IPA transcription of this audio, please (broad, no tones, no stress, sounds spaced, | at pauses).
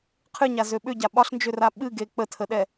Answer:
qʰ ɨ ɲ a z ø ɓ ʏ ɟ a ɓ ɒ ɬ n d͡ʒ ø r a ɓ ɨ ɡ e k͡p ə tʰ ə ɗ ɛ